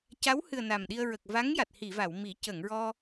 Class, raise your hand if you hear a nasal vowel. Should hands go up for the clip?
no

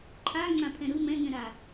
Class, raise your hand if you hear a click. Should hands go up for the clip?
yes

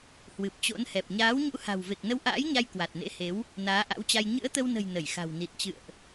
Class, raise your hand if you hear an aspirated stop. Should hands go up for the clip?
no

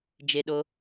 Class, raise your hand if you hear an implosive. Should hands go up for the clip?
yes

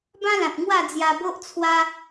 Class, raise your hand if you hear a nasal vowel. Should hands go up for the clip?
yes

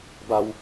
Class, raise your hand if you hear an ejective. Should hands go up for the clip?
no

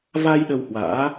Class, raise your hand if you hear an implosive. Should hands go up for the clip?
yes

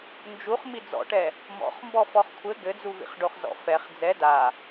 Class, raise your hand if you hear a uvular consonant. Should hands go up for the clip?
yes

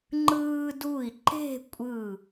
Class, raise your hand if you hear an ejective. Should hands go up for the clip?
yes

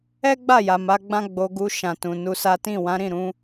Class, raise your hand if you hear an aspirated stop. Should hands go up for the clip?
no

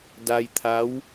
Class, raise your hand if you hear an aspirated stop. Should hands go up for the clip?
yes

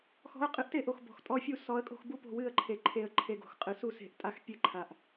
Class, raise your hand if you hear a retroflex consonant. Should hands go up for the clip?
no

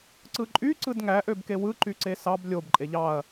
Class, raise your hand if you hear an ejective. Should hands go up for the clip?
yes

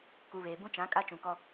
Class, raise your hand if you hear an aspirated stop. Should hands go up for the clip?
no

